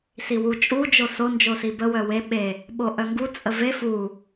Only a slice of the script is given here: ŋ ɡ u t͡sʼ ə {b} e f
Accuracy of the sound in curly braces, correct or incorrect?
incorrect